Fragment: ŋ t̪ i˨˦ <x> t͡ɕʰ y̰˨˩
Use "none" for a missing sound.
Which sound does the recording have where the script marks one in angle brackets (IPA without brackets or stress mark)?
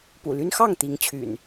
ŋ